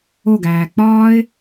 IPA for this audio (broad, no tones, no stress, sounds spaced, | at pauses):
o ɡ æː k͡p ɒː ɪ̯